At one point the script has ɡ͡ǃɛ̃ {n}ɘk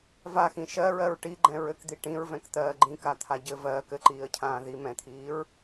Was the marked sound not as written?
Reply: yes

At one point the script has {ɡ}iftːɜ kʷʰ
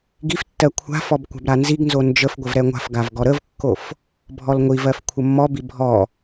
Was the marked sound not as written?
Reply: no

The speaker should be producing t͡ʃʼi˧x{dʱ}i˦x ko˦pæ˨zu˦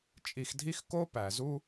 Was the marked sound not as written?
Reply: no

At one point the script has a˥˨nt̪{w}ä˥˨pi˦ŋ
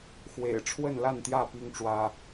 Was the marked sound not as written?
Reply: yes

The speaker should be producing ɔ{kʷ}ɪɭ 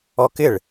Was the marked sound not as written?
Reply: yes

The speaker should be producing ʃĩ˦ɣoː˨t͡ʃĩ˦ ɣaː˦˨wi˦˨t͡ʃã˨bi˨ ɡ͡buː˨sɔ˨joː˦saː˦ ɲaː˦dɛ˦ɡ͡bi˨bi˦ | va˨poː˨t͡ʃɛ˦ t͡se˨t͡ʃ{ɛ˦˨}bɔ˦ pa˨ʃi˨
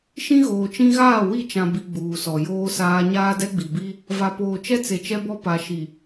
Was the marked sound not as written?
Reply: yes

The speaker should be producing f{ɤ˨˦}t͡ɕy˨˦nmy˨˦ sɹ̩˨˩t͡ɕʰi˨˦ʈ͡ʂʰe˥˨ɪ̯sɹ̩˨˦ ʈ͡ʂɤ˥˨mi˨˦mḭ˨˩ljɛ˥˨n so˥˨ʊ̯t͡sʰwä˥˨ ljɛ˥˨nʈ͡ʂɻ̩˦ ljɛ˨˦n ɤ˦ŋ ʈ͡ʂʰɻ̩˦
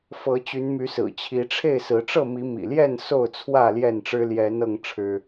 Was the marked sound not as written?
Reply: no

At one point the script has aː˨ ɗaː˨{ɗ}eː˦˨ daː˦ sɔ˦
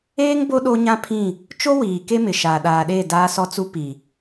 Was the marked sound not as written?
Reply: no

